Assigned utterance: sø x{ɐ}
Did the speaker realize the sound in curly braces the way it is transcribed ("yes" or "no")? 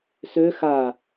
no